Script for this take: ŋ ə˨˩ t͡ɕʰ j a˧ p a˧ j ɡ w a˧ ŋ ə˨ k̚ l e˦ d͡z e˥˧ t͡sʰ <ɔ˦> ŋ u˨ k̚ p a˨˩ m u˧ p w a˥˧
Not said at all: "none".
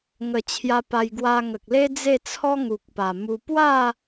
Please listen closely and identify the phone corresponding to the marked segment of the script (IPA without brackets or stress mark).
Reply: ɔ˦